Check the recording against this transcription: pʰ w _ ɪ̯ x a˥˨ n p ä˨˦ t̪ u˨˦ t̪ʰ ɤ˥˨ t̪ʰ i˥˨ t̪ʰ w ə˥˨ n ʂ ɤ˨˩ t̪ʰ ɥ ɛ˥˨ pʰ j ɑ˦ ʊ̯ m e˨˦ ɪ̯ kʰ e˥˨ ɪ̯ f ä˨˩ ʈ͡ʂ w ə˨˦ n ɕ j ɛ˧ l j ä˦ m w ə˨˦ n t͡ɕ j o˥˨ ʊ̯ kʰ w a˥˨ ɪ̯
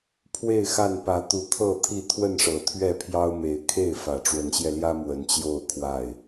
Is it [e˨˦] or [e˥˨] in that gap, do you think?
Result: e˥˨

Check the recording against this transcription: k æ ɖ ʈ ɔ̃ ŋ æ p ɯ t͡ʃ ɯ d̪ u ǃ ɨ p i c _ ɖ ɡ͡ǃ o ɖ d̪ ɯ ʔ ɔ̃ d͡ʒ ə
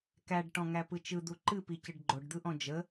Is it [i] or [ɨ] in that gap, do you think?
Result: ɨ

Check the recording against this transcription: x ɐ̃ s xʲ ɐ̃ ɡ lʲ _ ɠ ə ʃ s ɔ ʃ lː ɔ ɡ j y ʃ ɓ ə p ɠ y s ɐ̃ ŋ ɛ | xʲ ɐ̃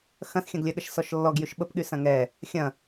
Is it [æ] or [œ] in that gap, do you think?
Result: œ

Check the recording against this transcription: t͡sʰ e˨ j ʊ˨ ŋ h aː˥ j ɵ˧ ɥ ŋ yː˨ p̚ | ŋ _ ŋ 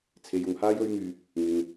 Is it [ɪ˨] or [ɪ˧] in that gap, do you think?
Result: ɪ˨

